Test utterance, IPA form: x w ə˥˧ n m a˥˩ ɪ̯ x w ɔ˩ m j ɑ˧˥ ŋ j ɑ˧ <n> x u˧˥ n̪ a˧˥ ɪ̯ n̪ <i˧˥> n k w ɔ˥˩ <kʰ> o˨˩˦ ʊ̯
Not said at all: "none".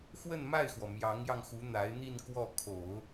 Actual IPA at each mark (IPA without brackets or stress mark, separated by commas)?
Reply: ŋ, i˥˧, kʰ